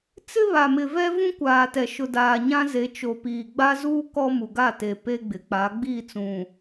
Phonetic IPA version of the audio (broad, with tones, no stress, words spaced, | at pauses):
t͡sɪ˦βa˨mɪ˨vɛ˦ vũ˦kʷaː˨tɛ˨ ʃʊ˨daː˨ɲã˦ze˨˦ t͡ʃo˨piː˨ɡ͡ba˦zuː˦ kɔ˦ mu˨ɡa˦˨te˨ pe˦ɡ͡bɪ˨ k͡pa˨˦ ɡ͡biː˦˨t͡sũ˨